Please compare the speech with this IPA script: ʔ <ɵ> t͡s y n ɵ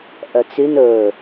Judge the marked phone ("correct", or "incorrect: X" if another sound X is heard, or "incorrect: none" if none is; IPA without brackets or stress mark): incorrect: œ